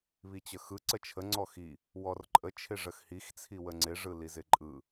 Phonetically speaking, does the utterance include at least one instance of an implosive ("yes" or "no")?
no